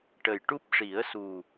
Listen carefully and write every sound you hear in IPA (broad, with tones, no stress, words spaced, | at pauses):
ʈə˨˩jʈu˦˥p̚ʂi˨˩˦ə̯su˨˩